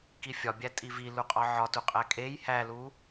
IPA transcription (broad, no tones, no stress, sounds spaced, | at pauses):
k i fʲ ɒ bʲ æ tʼ i v i l u qʼ ɒ ʕ ɒ t u qʼ æ kʼ e j h æ l u